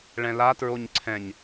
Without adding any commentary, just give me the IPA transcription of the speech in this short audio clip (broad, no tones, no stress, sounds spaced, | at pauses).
ɭ ɛ̃ l a t ɹ o ɲ ǀʰ ɛ̃ ɲ